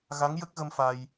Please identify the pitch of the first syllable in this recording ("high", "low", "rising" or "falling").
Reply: rising